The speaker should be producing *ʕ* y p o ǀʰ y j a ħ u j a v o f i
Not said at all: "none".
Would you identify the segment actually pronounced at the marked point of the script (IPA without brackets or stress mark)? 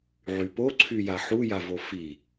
ʕ